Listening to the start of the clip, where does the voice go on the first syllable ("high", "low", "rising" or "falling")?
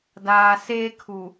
low